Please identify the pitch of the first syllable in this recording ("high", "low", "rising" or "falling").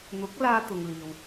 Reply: rising